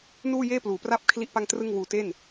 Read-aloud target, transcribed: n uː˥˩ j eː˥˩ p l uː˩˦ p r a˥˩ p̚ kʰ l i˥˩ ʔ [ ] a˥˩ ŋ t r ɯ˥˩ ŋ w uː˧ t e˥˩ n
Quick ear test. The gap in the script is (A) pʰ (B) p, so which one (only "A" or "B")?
B